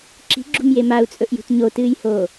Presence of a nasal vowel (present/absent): absent